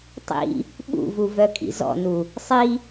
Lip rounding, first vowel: unrounded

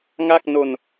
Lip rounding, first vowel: unrounded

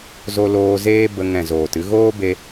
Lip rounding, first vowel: rounded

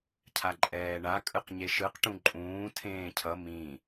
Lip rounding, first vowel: unrounded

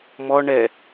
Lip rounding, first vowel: rounded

